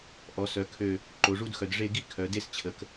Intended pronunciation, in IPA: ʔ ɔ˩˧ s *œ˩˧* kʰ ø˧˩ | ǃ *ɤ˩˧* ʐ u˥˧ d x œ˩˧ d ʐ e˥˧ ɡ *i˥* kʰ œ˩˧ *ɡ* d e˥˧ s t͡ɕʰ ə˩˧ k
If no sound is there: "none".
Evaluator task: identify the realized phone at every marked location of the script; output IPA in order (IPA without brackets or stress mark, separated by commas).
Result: œ˩˧, o˩˧, i˥, none